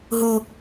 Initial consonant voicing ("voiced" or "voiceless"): voiced